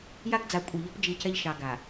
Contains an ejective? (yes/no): yes